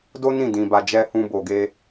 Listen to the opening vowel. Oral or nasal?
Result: oral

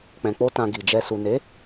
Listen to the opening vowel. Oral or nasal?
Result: nasal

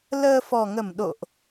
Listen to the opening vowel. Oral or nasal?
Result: oral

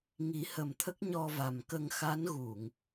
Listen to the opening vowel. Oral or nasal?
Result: oral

